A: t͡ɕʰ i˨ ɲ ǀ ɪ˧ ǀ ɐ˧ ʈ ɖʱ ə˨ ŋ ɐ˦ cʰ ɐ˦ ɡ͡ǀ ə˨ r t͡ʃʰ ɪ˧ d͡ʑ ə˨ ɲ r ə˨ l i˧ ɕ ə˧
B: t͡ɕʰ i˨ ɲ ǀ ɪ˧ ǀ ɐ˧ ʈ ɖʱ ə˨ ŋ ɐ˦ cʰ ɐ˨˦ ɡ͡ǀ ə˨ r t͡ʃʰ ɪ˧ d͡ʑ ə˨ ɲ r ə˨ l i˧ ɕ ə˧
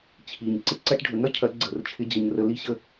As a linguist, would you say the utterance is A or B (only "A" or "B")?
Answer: B